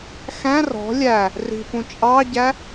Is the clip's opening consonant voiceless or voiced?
voiceless